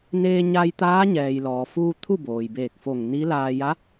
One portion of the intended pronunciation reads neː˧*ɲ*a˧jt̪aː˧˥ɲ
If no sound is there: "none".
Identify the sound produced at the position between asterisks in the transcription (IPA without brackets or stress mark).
ɲ